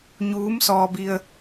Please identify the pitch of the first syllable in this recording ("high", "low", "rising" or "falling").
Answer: rising